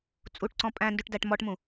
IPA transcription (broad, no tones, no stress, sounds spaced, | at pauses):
t͡sʼ u ʈ ǀ ɔ̃ pʼ æ̃ n d ʉ ʈ d æ ʈ m ɔ ʈ m ũ